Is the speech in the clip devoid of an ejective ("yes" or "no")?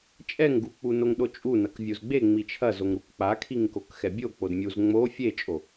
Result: no